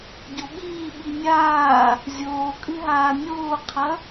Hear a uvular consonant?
yes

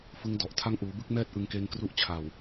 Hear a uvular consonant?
no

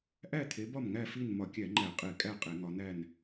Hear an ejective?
yes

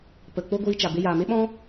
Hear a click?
no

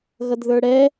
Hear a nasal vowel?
no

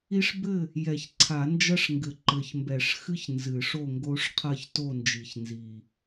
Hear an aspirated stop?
yes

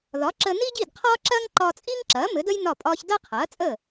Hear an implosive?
no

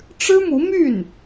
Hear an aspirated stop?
no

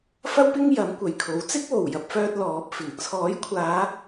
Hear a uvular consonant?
no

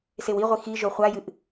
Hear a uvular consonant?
yes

